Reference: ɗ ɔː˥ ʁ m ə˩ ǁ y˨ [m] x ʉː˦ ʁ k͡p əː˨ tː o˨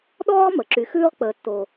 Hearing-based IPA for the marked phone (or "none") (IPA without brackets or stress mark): none